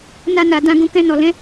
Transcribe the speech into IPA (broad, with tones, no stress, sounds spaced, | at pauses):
n a˧ n a˨ d ã˧ ɡ ũ˧ k ɛ̃˧ n ɔ˨ l ɛ̃˨˦